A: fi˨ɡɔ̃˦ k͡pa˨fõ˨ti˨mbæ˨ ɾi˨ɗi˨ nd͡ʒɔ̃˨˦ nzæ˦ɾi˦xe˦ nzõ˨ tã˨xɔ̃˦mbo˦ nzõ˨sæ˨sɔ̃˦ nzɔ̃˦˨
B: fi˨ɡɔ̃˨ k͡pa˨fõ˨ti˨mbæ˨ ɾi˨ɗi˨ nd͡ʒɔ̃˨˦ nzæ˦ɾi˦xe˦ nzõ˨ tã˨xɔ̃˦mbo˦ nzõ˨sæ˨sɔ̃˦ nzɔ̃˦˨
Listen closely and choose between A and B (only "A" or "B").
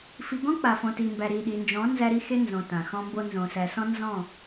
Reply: A